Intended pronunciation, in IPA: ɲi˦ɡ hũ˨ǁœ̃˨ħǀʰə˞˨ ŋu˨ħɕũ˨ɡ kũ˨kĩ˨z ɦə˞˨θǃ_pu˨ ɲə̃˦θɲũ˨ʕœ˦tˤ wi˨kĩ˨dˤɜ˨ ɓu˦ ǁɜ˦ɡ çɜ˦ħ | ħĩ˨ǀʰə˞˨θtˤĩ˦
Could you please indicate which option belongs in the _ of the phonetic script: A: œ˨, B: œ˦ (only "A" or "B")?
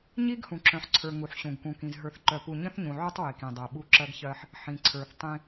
A